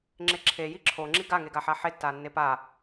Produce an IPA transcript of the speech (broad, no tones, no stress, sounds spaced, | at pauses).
ŋ͡ǁ e ǁʰ e j i ǁʰ o ŋ͡ǁ i ɡ a ŋ e ɡ a ħ a ħ e tː a nː e p a